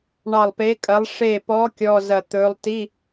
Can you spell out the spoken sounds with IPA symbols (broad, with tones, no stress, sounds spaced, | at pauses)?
ɳ ɑ˧˩ lˠ p e˨˥ kʼ ɐ˨˥ lˠ ʂ e˧˩ p ɔ˨˥ kʲ ɔ˧˥˧ z ɐ˧˩ t̪ ɵ˨˥ lˠ t i˧˥˧